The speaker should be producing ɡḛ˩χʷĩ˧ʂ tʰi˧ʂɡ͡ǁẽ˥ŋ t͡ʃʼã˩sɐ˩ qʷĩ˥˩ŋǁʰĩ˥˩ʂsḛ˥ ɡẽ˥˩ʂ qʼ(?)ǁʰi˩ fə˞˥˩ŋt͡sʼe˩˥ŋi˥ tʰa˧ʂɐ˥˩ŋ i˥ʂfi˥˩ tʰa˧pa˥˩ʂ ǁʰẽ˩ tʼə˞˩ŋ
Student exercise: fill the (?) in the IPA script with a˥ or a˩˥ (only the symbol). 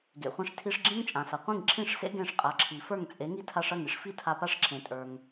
a˩˥